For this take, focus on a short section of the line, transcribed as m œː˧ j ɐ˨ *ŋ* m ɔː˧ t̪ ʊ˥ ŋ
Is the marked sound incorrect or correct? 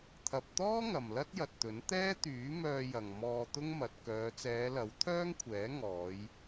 correct